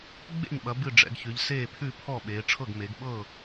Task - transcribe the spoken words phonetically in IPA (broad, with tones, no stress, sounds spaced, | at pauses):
ɡ͡b ḛ˥˩ ɲ ɓ ɐ˩˧ b ɨ˥˩ ɖ͡ʐ ɛ̰˩˧ ɡ ç ʉ˩˧ ʎ s eː˥˩ pʰ ʉ˥˩ pʰ ɔ˥˩ ɓ eː˩˧ ʈ͡ʂʰ ɤ˥˩ ɡ m e˩˧ ɡ ɓ ɤː˥˩